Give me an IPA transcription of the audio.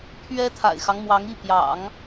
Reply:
pʰ ɥ ɛ˥ t̪ʰ a̰˨˩ ɪ̯ x ɑ˦ ŋ m w ɑ˧˥ ŋ i˥˩ p j ɑ̰˨˩˦ ŋ

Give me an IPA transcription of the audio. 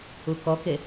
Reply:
u k ɔ k e

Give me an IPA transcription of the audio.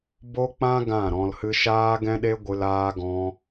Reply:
b o˦ k͡p ã˦ ɡ ã˦˨ ɾ ɔ̃˧ l h ɨ˦ ʃ aː˦ ɡ ɛ̃˦ ɗ e˦ ɡʷ ɨ˧ l aː˦ ɡ ɔ̃˦

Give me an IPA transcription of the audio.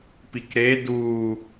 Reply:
p i k ɾ e d u

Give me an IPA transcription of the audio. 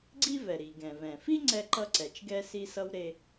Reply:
ɡ͡ǀ i˥ v ɛ˩ ɾ i˩ ɡ ɛ̃˩ v ɛ̃˩ f i˥ ŋ͡ǀ ɛ˥ ǃ ʌ˥ ǀ ɛ˩ t͡ʃ ɡ ɛ˥ s i˥ s ʌ˥ w ɾ e˥

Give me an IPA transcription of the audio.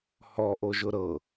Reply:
h ɔ ʔ o ʒ ʊ ɾ ɤ

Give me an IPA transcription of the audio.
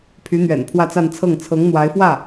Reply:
pʰ y˧˥ n̪ ɥ ɛ̰˨˩ n pʰ w ä˥˧ t͡s a˥˧ n t͡sʰ ɤ˥˩ ŋ t͡sʰ ɤ˧˥ ŋ n̪ w a˧˥ ɪ̯ f w ä˥˩

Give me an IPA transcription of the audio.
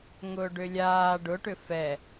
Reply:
ŋ ʊː ɖ ʏ lʲ aː ɖ ʊ ʈ ʏ f ɛ

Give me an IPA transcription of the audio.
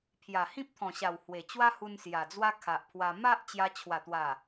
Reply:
pʰ j a˨˩ h ĩ˦ p̚ t̪ʰ ɔ̃˨˩ ɕ a˨˩ w h w e˨˩ t͡ɕ w a˦ h u˧ n s j a˨˩ d͡z w a˦ kʰ a˨ ʔ pʰ w a˧ m a˦ ʔ t͡ɕ j a˧ t͡ɕʰ w a˨˩ t̪ w a˨˩

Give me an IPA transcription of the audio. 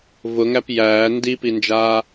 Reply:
v ʊ ŋ æ p j æː n d i p i n d͡ʒ aː

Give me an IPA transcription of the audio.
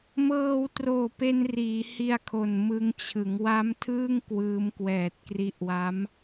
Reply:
m ɤː˧ w t r oː˨˩ p e˧ n r iː˩˦ h i˧ a̯ kʰ o˨˩ n m ɯ˧ ŋ t͡ɕʰ ɯ˩˦ ŋ w a˦˥ m tʰ ɯː˥˩ ŋ k w ɯː˦˥ m k w ɛː˨˩ t̚ k r i˦˥ ʔ w a˦˥ m

